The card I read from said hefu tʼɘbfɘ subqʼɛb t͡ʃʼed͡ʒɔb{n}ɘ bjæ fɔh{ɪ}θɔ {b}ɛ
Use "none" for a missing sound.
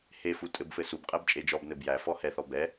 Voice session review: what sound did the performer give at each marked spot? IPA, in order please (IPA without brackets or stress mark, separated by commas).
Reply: n, ɛ, b